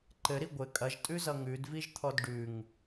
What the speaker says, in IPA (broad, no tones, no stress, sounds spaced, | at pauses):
ǃ ɘ ɾ i ɡʷ ɘ kʼ ɐ ʒ tʼ ʉ z ʌ ŋ ʉ d v i ʒ t̪ʰ ɔ d ɖ ʉ ŋ